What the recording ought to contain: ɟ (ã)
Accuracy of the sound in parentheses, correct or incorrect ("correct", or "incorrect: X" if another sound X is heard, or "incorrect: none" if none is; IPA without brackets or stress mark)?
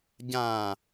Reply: correct